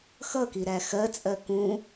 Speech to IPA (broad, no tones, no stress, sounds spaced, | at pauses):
x ʌ k i ɾ æ x ɜ t͡sʼ ɜ k ũ